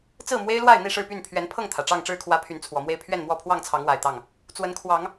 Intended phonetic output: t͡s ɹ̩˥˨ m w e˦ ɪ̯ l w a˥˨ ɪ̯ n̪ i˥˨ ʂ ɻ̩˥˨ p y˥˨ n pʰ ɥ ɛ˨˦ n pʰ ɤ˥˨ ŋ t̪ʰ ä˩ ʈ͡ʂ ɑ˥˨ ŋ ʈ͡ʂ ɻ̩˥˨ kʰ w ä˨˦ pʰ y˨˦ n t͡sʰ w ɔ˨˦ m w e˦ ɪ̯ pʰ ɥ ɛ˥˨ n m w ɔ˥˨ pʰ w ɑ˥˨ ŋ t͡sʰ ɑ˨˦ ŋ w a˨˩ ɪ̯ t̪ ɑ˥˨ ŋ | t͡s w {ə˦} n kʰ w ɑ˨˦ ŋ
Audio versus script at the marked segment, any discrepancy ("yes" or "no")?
yes